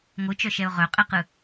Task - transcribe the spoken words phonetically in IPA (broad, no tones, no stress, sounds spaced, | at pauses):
ŋʷ ɯ t͡ʃ œ ʃ ɛ ʊ̯ ʁ œ qʼ ɛ q ɯ